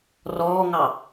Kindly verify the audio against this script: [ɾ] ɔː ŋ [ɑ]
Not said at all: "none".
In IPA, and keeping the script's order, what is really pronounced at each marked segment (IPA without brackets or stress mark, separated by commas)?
r, ɑ